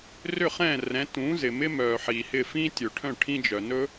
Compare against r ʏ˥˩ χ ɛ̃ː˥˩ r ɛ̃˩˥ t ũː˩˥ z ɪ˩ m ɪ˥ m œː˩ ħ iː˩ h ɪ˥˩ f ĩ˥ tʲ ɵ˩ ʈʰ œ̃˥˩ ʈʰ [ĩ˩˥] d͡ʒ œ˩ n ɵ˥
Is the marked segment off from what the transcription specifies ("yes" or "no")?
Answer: yes